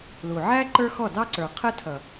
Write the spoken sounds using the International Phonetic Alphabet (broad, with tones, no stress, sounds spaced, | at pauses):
l u˨ ʕ æ˦ ǃ ə˞˦ x ɔ˦˨ d ɑ˦ ǀ ə˞˨ qʰ ə˦ tʰ ʌ˨